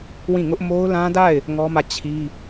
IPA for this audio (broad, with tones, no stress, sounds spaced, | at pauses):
w ĩ˦˨ ŋ ʊ˦ ʔ m o˦ ʊ̯ l ã˦ d a˦˨ ɪ̯ | ŋ ɔ˦ m ä˦˨ t͡ɕʰ i˦